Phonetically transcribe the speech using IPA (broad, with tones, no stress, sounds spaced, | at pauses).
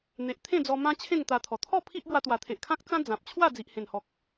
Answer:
n̪ e˨ ʔ t̪ʰ ẽ˥˧ d͡z ɔ˧ m ã˦ t͡ɕʰ ẽ˥˧ ŋ t̪ a˧ t̪ʰ ɔ˨˩ t̪ʰ ɔ˥˧ pʰ i˦ ʔ b w a˧ t̪ w a˨˩ t̪ʰ e˨ ʔ kʰ ã˦ k̚ t͡s ã˦ d͡z ã˨ p̚ t͡ɕʰ w a˥˧ d͡z i˨ ʔ h ẽ˨˩ n h ɔ˨ k̚